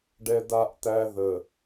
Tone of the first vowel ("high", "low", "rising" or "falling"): high